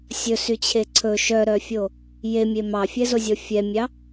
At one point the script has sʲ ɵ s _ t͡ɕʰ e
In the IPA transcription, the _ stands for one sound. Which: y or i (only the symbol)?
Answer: y